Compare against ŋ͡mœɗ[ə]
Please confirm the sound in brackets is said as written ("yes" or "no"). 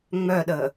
yes